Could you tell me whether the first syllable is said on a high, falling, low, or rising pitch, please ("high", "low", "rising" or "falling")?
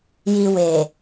low